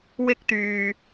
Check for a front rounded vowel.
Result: present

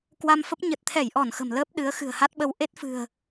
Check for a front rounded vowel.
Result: absent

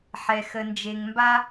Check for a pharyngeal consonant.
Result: present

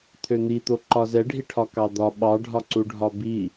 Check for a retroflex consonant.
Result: present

